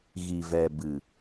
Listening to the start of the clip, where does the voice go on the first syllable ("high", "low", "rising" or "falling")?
low